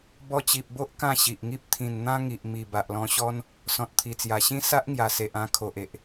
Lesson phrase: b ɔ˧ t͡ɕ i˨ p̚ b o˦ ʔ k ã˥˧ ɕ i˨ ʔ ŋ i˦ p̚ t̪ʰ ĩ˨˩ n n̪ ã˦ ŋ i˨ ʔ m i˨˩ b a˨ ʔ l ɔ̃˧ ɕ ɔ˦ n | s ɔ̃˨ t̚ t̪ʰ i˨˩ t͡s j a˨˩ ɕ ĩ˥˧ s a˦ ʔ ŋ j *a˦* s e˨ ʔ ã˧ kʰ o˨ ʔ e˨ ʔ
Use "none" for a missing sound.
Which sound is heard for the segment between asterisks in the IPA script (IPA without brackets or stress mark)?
a˨˩